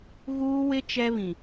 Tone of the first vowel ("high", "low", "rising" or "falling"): high